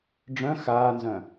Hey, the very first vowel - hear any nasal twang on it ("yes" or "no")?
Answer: yes